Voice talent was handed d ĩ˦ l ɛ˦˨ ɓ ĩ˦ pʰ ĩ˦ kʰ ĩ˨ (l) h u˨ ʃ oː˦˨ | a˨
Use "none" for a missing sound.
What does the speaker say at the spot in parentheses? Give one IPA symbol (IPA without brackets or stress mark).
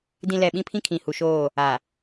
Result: none